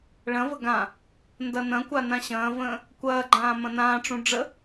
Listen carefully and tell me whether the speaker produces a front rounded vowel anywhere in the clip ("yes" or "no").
no